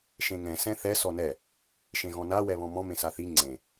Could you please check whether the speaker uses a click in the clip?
yes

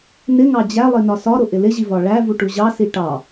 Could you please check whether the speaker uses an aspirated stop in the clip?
no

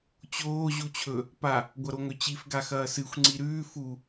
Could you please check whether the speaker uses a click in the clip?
yes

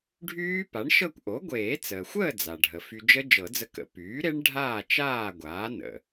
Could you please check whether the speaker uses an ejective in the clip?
no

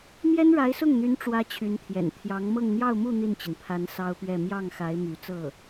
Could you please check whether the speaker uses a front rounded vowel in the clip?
yes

